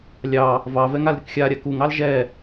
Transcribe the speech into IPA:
lʲ ɑ | v ɑ v ɛ ŋ a l ɾʲ ə k xʲ a ɾʲ a k u ŋ ɑ l ʒ ɛ

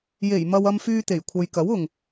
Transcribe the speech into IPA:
j e˨˩ j m ɐ˧ w ɐ˧ m f yː˧ t̪ e˨˩ j kʷʰ ɐ˨ j k ɐ˨˥ w ʊ˨ ŋ

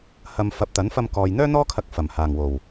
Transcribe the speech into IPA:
h ɐ˨ m f ɐ˨˥ p̚ t̪ ɐ˨˥ n f ɐ˧ m k ɔː˨ j n̪ œː˥ n̪ ɔː˥ kʰ ɐ˧ k̚ f ɐ˨˩ m h aː˨˩ ŋ w o˨˩ w

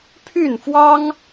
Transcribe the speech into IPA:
pʰ y˥˨ n f w ɑ˦ ŋ

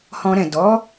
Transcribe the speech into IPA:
h ɔ̃˧ ɾ ɛ̃˨ d ɔ˨˦

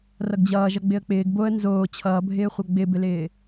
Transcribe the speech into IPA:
r ʌ ɡ d͡ʑ ʌː ʒ ʌ ɡ͡b ɪ ə̯ k͡p ɪː ɡ b o ə̯ n z oː t͡ɕʰ ʌː bʱ ɪː χʷ ʌ ɡ͡b ɪ b ɪ l ɪː

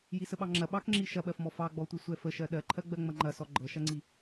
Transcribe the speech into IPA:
j i s ə ɓ ɑ ŋ͡ǁ ɐ ɓ ɑ k ŋ͡ǁ i ʃ ɐ ɓ ɜ f m ɔ f ɑ ɡ͡b ɔ tʷ i sʷ ɛ f ə ʃ ɜ ɗ ɜ ǃʰ ɜ ɡ͡b ɜ ŋ͡m ɐ ŋ͡ǃ ɐ s ɔ ɡ͡ǃ ɤ ʃ ɐ ŋ͡ǀ i

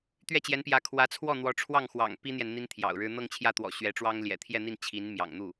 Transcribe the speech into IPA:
t̪ ɥ ɛ˥˩ t͡ɕ j ɛ˧˥ n p j ä˧˥ kʰ w ä˧˥ t͡sʰ w ɔ˥˩ n̪ w ɔ˧˥ ʈ͡ʂʰ w ɑ˥˩ ŋ x w ɑ̰˨˩ ŋ p i˥ n̪ j ɛ˨ n n̪ i˥ n t̪ʰ j ɑ̰˨˩ ʊ̯ ɻ ɻ̩˥ n̪ ɤ˥˧ ŋ t͡ɕʰ j ä˥˩ t̪ w ɔ̰˨˩ ɕ ɥ ɛ˧˥ ʈ͡ʂ w ɑ˥ ŋ l j ɛ̰˨˩ t̪ʰ j ɛ˥˧ n̪ i˥˩ n t͡ɕʰ i˧˥ n m j ɑ̰˨˩ ŋ n̪ u˥˩

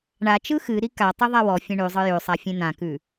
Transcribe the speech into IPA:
ɳ a t͡ʃ ɯ x ɨ ɾ i k a tˤ i ðˤ a w ɔ fʲ ẽ ɳ ʉ zˤ ɯ j ʉ sˤ a fʲ ẽ n̪ ã k ʉ

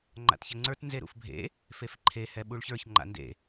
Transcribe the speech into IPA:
ŋ͡ǃ a̰ t ç ɛ ŋ͡ǀ ə˞ t n z e ɾ ṵ f bʱ ḛ | f e f ǃʰ e h ɛ ɓ u ɭ ç ə˞ ç ŋ͡ǃ a̰ n d ḛ

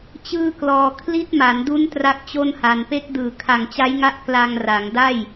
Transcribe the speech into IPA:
t͡ɕ ɯː˥˩ k l ɔː˧ kʰ l i˦˥ t̚ m a˩˦ n d u˦˥ n t r a˥˩ k̚ t͡ɕ o˥˩ n h a˧ n p e˦˥ k̚ d ɯː˨˩ kʰ a˨˩ ŋ t͡ɕ a˦˥ j ŋ a˦˥ ʔ k l a˧ ŋ r a˩˦ ŋ d a˥˩ j

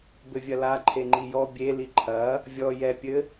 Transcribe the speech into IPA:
b ɘ vʲ ɐ l a ǃʰ e ŋ͡ǃ i j ɔ bʲ e l i ǃʰ ɐ | vʲ ɔ j ɛ pʲ ɘ

